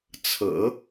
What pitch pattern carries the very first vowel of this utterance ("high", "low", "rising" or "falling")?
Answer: low